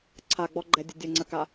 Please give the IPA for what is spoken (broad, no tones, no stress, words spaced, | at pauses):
ǀʰaɡ͡bɔɡ͡ǃɛdʲə dʲəŋ͡ǀəka